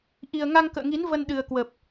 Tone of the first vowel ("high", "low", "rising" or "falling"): low